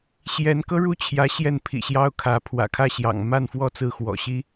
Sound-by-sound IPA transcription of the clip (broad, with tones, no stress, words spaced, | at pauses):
ɕjɛ˧˥nkɤ˥ɻu˥˩t͡ɕʰjä˧˥ ɕjɛ˥˩npʰḭ˨˩ɕjɑ˥ʊ̯ kʰä˧˥ pʰwä̰˨˩kʰä˥˩ɕjɑ̰˨˩ŋ ma˥˧nfwɔ˥˧ t͡sɹ̩˥˩xwɔ̰˨˩ɕi˥